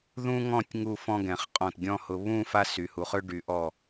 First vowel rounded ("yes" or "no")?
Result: yes